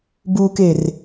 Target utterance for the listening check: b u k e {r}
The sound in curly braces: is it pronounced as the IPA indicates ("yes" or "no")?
yes